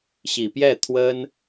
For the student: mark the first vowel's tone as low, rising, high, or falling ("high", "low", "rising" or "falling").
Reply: low